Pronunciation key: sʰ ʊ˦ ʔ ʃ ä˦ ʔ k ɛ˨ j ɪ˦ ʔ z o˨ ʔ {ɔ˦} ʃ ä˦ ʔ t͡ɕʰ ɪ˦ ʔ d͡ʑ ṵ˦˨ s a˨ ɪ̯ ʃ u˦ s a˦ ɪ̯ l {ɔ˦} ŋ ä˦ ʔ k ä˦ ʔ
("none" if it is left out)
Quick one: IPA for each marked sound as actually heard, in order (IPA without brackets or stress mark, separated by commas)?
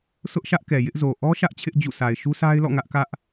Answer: ɔ˦, ɔ̰˦˨